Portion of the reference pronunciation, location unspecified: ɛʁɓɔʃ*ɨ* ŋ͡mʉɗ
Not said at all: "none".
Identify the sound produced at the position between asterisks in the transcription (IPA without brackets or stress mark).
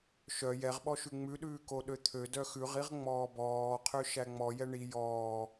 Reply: ʉ